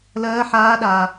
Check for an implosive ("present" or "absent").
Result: present